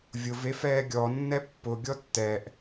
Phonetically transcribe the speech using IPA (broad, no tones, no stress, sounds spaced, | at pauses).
vʲ ʊ v e f ɛː ɡʲ ɔ nː ɛ pː ʊ ɡʲ ɔ tː ɛ ʔ